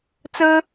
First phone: t͡s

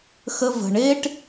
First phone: x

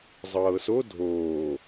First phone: zˤ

